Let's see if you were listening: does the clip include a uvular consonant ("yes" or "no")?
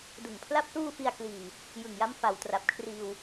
no